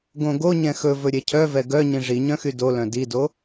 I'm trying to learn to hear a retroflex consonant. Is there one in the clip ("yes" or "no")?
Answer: yes